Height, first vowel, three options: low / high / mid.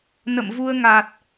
mid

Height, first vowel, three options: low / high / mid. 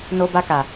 mid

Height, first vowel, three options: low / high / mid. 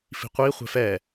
high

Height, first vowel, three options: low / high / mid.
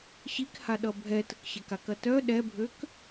high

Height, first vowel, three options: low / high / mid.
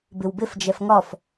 high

